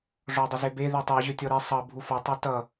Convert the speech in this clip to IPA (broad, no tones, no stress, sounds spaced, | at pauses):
ʐ ɔ dˤ ə z e b e ð i tˤ i ʑ ø tʲ ɔ ɾ i sˤ ʌ bʱ u f ʌ tˤ ɛ t ʌ